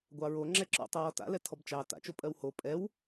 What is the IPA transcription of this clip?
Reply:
ɡʷɑɹo ŋ͡ǁɛǁɔ̰ tˤɜwɔta̰lɛ tʰɔbt͡ʃɑ ta̰t͡ʃopʼɜw ho pʼɛw

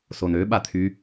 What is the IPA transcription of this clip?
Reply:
sonøɓat̪ʰy

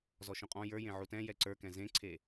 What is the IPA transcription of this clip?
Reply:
zɔʃũqʼɔ̃ jə˞jẽ ʕutɛ̃ jɛǀə˞kɛ̃ zẽǀʰe

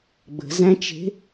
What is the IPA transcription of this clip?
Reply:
ɡ͡bə̤zæ̃t͡ʃe̤

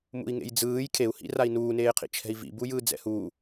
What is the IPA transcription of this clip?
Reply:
mṵi̯ŋḛjd͡zɯːj kʰeu̯hḭrai̯ nuːneːqʰḭ t͡ʃʰɛ̤i̯vḭbu jɯːd͡zɛ̰huː

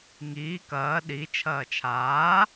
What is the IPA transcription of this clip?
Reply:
ŋiː kɐː ɗit͡ʃʰɐː t͡ʃʰaː

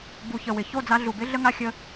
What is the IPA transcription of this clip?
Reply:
bu˨çə˨ wɪ˨ ço˦˨d͡za˧ ɮu˨bɪ˦ ɮə˦ŋa˦xʲə˦

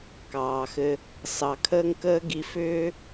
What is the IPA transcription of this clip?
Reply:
kɑː˨xɘ˧ | sɑ˨kʰəː˦ŋkəː˦ ɡi˧fʏː˦

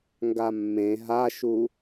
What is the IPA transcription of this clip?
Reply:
ŋɡamːẽ ɦaʃu

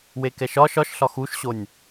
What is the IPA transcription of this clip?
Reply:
wekɛʃɒʃ ɒʃɬɒ xuʃɕonʲ

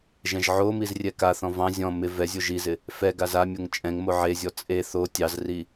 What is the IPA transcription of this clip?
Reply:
ʒɛ̃ʒʕomiz rʲɛkaθɔ̃ vɑ̃ zʲɔ̃ mɪ vɛzʲo ʒizɪ | fɛ ɡazamʲoŋ t͡ʃʼɛ̃ŋmo ʕezʲɔ t͡sʼe θo tʲɑzri

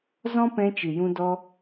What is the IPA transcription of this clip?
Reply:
zɔ̃˦pɛ̃˧ t͡ʃɨ˨jũ˧dɔ˧

